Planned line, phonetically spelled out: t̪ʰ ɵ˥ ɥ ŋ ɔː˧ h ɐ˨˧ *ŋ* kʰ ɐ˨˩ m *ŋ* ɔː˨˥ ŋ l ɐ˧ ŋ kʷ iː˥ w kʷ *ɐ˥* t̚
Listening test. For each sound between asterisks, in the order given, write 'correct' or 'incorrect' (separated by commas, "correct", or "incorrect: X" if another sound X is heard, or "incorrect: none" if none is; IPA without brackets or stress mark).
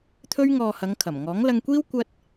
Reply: correct, correct, correct